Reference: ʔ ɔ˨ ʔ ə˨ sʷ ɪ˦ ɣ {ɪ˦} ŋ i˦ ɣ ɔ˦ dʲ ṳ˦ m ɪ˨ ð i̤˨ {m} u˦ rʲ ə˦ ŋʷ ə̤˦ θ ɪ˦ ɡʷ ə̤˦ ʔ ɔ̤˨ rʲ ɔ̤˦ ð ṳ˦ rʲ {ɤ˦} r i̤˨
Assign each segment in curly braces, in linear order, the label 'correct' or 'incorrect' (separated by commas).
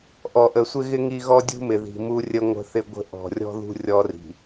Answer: correct, correct, incorrect